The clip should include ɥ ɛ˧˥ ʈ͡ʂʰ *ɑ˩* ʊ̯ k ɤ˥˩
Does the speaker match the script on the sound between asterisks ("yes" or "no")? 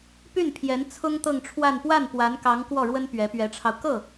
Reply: no